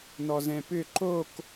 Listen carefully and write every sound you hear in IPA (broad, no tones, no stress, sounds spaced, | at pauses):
n ɔ z ɛ̃ p ʏ ǃ o k